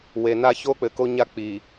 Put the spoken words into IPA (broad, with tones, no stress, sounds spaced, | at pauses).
w e˨ n a˦ ç o˦ k͡p ɘ˨ k o˦ ɲ a˦ k͡p i˨